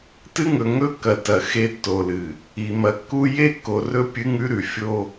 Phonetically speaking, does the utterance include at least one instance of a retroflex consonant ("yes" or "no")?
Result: no